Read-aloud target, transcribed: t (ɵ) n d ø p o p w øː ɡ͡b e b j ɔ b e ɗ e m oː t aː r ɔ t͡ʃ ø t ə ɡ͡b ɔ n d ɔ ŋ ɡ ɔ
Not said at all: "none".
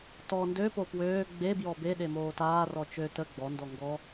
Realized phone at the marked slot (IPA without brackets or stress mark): ɔ